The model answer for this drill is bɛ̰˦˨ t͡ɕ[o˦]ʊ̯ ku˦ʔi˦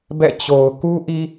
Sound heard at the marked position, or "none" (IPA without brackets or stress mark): o˨